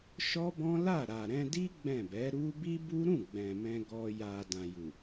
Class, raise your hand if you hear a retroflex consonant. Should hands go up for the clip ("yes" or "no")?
no